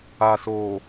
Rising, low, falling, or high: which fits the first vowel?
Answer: low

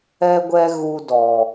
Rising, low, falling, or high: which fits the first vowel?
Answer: high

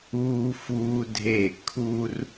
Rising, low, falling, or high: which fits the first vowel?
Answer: high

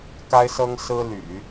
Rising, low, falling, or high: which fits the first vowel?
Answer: high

